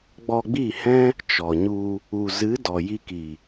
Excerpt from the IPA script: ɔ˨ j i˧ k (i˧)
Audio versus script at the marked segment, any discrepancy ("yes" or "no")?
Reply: yes